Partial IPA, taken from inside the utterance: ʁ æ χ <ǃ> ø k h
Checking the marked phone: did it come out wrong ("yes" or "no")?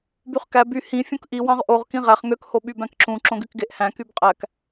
yes